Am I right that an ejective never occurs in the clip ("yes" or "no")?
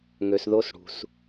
yes